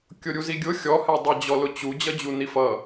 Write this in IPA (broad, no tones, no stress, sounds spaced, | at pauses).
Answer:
kʲ ʊ ɾʲ u z i ɡʲ ʊ xʲ ɔ h ɛ dˤ ʌ d͡ʑ ɔ l ʊ t͡ɕ u d͡ʑ ʌ d͡ʑ u n i f ʌ